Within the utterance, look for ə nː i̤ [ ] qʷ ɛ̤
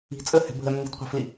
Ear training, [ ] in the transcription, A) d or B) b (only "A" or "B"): A